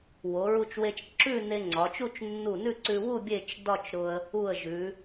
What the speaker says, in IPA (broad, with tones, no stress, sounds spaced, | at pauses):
w o˩˧ ɹ u˧ t͡ʃ w e˧ t͡ʃ ǁ ʉ˥˧ n e˧ ŋ͡ǀ ɒ˩˧ t͡ʃ u˥˧ t͡ʃ nː u˧˩ n ʉ˥˧ ǀ ʉ˧ w u˥˧ bʲ e˥˧ t͡ʃ d ɒ˥˧ t͡ʃ ɾ ʊ˧ ə̯ | u˧˩ ə̯ ʒ ʉ˩˧